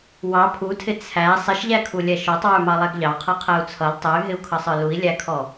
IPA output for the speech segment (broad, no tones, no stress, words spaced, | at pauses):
wɑ pʰutʰɪ t͡sʰæ sˤɪʃʎækʰulʲɛ ʃɔtˤwə˞mɑlˠæɡ ʎɑqʰʌqʰæu̯ t͡sʰʌl tˤɛy̯ɦɪu̯kʰʌsˤə˞ lui̯lʲækʰɔ